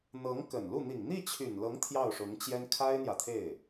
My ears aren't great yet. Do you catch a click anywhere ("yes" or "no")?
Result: no